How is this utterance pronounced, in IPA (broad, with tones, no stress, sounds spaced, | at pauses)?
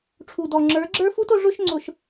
ʈ͡ʂʰ u˨ d ɔ˨ ŋ͡ǁ ə˞˨˦ ɡ͡ǁ ə˞˦ f u˦ t ʊ˦ ʐ ʊ˦ ʃ ŋ͡ǀ ʊ˨ ʃ